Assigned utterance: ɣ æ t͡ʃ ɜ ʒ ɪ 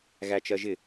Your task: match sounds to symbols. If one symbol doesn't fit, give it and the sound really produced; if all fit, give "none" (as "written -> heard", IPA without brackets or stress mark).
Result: none